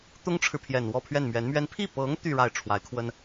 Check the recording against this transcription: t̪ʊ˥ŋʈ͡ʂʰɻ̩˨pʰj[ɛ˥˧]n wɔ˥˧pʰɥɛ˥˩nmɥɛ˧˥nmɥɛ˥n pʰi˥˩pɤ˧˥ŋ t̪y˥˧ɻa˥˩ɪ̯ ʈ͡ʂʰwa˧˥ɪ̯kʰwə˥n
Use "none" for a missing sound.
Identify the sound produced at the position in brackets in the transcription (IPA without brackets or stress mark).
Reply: ɛ˨˩